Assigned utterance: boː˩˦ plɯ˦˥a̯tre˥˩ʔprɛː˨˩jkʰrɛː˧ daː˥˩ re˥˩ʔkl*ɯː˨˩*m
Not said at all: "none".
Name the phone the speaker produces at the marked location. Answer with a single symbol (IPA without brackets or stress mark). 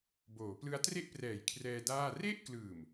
ɯː˨˩